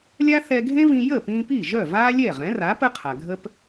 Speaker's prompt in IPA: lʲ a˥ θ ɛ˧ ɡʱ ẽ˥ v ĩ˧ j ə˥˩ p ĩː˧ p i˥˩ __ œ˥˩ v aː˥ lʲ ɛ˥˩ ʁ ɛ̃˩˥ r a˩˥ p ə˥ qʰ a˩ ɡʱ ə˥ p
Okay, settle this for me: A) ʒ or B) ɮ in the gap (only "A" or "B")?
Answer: A